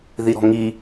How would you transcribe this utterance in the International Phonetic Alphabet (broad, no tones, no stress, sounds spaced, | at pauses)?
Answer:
ð i ɾ ɔ̤ ŋ i